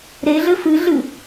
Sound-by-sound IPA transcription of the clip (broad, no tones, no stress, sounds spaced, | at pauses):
ɾ e ɮ ɘ f ɨ ɮ ɨ